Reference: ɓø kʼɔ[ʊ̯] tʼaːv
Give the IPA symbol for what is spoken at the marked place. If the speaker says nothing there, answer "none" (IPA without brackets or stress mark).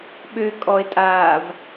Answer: ɪ̯